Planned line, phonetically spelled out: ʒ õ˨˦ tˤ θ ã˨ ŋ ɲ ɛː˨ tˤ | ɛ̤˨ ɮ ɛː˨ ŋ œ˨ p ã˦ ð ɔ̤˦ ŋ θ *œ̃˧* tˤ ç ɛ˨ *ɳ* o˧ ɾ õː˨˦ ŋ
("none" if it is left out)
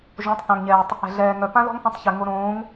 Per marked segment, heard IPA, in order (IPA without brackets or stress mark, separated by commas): œ̃˧, ŋ